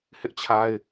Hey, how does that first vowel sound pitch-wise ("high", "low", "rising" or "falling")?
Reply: high